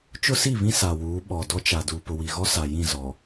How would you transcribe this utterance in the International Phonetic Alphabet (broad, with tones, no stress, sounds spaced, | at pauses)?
t͡ʃ ʊ˦ s i˦˨ β ĩ˦ s a˨ w uː˨˦ ɓ ɔ˨ d ɔ˦ t͡ʃ a˨ d uː˨ p ʊ˨ w i˨ ɣ ɔ˦ s a˨ j ĩ˦˨ z ɔ˨